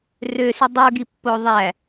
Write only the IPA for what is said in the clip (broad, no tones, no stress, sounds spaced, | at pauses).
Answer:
r ø s y dˤ u ɡ i pː o ðˤ æ